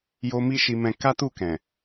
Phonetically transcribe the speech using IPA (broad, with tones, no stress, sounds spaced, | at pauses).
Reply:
j o˧ m i˦ ʃ i˧ m ɛ̃˧ k a˦ t u˦˨ k ɛ̃˨